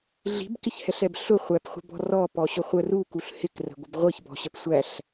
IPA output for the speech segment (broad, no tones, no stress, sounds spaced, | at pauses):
ɮ i̤ b k ɪ ç h ɛ ɬ ɛ b ɬ ʊ χʷ æ p χʷ ə̤ b ɔ̤ r ɔ p ɔ ɕ ʊ χʷ ə r u k u ɬ h ɪ k r ə̤ ɡʷ ə b ʁʷ i ç b ɔ̤ ɕ ə p sʷ æ ɬ